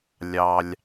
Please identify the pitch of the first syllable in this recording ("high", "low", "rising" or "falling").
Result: high